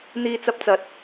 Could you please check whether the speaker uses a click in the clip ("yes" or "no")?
no